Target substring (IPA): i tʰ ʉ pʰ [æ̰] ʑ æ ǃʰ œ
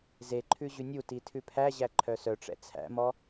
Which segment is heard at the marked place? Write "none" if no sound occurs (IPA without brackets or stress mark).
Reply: æ